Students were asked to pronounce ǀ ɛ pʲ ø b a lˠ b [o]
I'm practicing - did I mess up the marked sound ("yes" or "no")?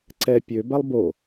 no